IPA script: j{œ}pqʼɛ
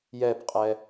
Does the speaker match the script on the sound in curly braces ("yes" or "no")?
no